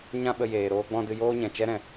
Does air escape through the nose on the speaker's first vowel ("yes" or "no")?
yes